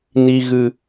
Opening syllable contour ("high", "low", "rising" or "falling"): low